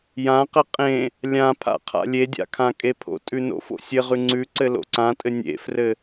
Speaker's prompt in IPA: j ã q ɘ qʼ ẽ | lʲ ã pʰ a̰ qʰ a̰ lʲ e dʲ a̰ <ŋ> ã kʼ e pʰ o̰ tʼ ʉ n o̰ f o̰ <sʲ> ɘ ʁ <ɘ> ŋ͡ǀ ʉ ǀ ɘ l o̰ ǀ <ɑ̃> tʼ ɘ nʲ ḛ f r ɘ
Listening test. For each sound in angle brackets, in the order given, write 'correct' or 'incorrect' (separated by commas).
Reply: incorrect, correct, incorrect, incorrect